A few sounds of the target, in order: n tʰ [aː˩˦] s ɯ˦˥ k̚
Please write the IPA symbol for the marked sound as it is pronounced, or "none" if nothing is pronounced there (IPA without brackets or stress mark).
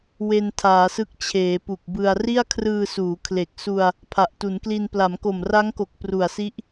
aː˩˦